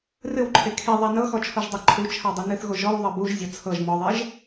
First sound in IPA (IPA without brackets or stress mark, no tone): r